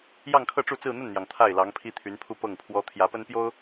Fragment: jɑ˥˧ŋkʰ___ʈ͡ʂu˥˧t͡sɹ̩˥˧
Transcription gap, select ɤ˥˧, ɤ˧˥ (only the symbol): ɤ˥˧